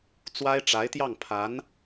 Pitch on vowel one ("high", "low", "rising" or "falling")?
high